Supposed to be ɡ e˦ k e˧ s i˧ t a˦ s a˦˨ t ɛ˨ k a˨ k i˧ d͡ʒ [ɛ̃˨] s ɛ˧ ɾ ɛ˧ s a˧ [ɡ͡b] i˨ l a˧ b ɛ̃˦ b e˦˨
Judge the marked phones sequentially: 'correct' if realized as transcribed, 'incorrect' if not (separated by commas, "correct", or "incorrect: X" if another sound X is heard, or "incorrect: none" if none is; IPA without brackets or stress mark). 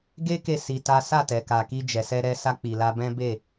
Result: incorrect: ɛ˨, incorrect: k͡p